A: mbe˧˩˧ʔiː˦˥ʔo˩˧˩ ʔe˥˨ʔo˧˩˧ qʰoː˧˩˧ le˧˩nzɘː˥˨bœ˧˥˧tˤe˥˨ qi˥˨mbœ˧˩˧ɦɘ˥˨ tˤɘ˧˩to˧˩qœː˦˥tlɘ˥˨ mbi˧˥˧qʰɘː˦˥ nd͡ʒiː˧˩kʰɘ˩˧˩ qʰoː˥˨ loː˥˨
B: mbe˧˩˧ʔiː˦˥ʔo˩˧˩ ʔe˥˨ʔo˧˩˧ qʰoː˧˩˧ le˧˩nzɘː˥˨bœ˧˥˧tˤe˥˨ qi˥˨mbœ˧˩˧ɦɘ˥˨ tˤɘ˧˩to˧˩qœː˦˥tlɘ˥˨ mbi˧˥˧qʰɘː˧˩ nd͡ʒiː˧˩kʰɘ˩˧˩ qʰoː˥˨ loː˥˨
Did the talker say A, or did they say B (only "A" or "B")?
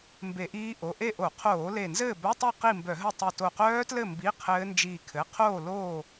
A